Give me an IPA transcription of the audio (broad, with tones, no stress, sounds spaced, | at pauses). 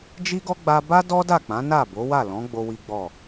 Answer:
d͡ʒ i˦ ɡ ɔ˦ ɡ͡b a˧ b a˦ d ɔ˦ d a˦˨ k͡p ã˨˦ n a˦˨ b o˨˦ w a˦˨ l ɔ̃˨˦ ɡ͡b o˦ w i˦ ɡ͡b ɔ˦˨